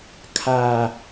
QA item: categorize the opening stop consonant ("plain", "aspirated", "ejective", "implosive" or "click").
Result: aspirated